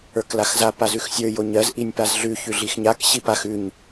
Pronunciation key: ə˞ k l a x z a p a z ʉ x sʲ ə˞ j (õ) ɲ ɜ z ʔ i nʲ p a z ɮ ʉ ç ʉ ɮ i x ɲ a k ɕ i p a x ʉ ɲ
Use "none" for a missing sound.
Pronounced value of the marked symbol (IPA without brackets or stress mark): o